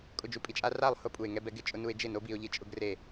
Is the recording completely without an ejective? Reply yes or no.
no